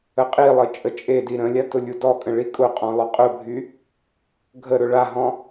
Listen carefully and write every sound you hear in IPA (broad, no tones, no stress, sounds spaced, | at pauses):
ə qʼ i lˠ ɘ t͡ʃʼ ə t͡ʃʼ e d i ɾ ə̃ lʲ a t ʊ lʲ u d ɔ kʼ ə̃ ɭ i kʼ ʊ qʼ ɔ̃ lˠ ʏ qʼ ʊ bʱ y | ɡʱ ə ɾ ʊ ɭ a ɦ ɔ̃